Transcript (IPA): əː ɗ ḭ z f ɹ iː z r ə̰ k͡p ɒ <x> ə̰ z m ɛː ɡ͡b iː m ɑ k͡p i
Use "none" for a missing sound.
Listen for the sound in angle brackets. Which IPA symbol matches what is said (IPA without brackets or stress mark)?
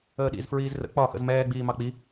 x